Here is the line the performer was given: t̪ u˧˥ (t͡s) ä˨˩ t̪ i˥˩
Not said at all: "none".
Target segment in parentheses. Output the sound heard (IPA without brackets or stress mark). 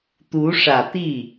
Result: ʂ